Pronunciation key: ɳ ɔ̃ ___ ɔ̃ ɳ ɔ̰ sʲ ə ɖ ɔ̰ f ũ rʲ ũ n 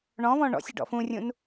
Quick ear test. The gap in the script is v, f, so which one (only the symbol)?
v